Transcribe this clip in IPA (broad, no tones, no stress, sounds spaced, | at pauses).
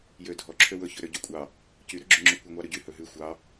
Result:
j ø dʱ ɔ ǁʰ ø w ɵ ç ɵ ɾ ø ɟ u kʷʼ ɑ | c y ɾ ɵ ɡ͡ǁ ʉ ŋ͡ǁ ʉ kʷ ɑ ŋʷ ɑ ɾ ʉ ɟ y h ɵ ɦ ʉ xʷ ɑ